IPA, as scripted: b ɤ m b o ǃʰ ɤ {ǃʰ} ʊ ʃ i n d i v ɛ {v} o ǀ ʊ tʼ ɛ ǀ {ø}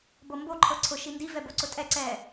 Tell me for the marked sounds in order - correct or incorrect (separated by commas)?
incorrect, incorrect, incorrect